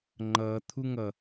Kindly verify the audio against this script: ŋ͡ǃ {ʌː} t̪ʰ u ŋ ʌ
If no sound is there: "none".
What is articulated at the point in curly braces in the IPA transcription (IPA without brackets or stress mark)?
ʌː